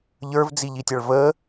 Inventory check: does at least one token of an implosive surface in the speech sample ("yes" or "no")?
no